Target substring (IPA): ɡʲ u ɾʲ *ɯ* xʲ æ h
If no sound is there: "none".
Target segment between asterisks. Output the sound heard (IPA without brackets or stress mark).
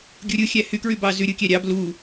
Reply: ɯ